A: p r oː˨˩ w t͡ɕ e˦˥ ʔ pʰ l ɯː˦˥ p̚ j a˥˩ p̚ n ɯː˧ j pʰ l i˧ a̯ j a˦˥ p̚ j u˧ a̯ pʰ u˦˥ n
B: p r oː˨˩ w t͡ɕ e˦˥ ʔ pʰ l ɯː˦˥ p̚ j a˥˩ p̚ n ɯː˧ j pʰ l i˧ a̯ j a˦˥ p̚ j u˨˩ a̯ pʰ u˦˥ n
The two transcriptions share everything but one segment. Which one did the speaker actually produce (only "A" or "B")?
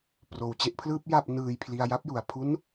B